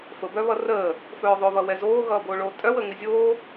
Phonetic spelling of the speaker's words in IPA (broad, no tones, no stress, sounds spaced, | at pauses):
f ə b œ β ʌ r əː | f œː ðˤ o β ʌ w ɛ z oː ɣ ʌː b oː ɭ oː tʼ œ w ə ŋ ɪ zʲ oː